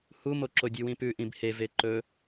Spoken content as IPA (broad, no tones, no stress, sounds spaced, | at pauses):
h u m o ǁ o dʲ ʉ w ĩ p ʉ ʔ ĩ b h e v e ǃ ɵ